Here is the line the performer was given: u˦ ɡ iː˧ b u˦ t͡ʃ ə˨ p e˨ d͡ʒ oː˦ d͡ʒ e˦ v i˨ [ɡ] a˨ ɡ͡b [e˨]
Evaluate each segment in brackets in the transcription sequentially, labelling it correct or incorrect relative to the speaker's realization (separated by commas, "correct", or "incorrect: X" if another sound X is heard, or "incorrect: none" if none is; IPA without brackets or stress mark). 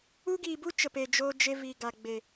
correct, correct